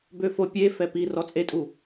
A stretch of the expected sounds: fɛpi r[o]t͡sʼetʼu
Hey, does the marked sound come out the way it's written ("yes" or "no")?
no